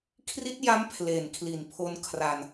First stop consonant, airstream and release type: aspirated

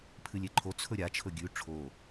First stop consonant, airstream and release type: aspirated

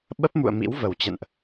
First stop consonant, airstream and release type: implosive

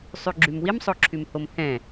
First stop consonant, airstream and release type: click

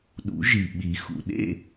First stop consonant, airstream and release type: implosive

